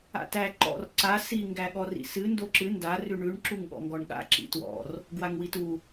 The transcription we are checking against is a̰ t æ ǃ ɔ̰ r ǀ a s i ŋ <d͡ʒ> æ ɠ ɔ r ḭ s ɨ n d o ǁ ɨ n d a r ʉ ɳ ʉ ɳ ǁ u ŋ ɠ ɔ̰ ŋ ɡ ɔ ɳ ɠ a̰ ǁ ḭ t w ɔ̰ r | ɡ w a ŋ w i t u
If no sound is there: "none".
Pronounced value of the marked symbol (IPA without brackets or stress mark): ɡ